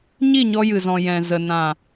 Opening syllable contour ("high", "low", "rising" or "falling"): falling